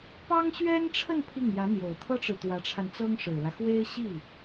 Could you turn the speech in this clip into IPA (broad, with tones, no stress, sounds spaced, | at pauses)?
p ɑ˥ ŋ ɕ ɥ ɛ˥ n ʈ͡ʂʰ ə˥˧ n pʰ i˥˩ ŋ j ä˧˥ n̪ j o˨˩ ʊ̯ t̪ʰ ɤ˥ ʈ͡ʂ ɻ̩˨ t̪ w ä˧˥ ʈ͡ʂʰ a˧ n t͡s ɤ˥ ŋ ʂ ɻ̩˨˩ l ä˦ x w e˥ ɪ̯ ɕ i˥˩